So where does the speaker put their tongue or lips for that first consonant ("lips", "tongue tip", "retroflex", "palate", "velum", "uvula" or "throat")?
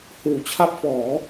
throat